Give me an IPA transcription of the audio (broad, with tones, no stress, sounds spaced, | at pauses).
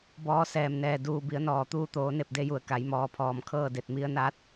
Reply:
b ɔː˧˥ s ɛː˧˩ m n ɛː˧˩ d uː˧˩ b i˩˧ ə̯ n ɔː˩ t̪ uː˧ t̪ oː˩˧ n e˧˩ p̚ d e˧ j u˩ ə̯ k a˩˧ j m ɔː˩˧ pʰ ɔː˩ m kʰ ɤː˥˨ d e˧˩ t̚ m i˧ ə̯ n aː˧˥ t̚